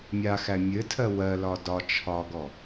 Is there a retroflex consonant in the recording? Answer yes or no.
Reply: no